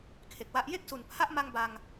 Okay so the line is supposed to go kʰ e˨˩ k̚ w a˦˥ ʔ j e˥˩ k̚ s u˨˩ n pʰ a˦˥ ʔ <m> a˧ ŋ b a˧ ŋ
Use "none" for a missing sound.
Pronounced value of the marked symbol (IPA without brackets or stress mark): m